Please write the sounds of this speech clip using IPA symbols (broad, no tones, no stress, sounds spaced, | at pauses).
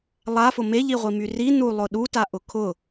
lˠ a f ʊ m e ʎ i ʁʷ i m y r i n u lˠ ʊ ɗ u t a ʔ ʊ kʰ ʊ